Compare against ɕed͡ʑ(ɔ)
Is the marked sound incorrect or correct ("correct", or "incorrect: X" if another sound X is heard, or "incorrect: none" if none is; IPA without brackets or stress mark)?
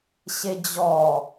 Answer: correct